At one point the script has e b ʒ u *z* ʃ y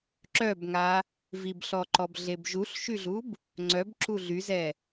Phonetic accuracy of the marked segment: incorrect: ɬ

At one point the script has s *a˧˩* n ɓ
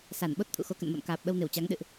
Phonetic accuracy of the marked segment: correct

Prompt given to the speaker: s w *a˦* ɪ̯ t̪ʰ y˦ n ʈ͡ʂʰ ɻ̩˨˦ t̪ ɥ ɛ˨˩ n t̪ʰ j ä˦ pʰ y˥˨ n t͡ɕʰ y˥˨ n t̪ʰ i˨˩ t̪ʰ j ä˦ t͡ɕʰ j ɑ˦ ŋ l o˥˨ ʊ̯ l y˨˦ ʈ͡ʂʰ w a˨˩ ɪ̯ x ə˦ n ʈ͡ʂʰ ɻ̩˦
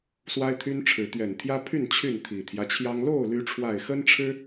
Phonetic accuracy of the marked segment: correct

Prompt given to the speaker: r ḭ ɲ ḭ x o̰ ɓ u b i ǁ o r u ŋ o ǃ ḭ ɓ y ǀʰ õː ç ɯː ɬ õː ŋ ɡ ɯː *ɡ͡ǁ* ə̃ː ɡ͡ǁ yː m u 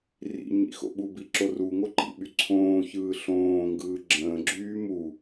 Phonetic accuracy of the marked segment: correct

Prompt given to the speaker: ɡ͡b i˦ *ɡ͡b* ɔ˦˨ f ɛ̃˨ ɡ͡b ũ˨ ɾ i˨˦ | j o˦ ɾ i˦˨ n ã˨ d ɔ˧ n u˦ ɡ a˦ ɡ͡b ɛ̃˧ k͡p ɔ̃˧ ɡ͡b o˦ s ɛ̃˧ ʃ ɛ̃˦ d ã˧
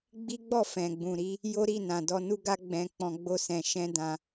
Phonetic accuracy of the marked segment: correct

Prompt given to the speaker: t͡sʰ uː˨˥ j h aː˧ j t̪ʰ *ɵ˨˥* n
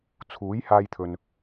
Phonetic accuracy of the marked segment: incorrect: ɵ˨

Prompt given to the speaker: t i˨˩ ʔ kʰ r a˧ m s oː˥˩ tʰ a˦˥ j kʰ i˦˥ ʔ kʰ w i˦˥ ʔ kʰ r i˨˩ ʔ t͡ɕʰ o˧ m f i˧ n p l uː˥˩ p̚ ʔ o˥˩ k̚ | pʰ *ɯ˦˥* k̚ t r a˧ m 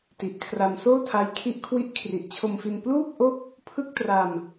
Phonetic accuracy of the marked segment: incorrect: ɯ˥˩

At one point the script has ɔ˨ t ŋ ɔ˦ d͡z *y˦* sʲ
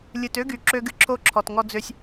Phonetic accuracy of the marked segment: incorrect: ø˦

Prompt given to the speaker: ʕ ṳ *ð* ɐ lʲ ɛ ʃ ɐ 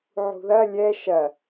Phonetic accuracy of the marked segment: correct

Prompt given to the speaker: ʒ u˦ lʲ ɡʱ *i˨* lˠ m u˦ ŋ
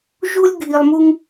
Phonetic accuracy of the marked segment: correct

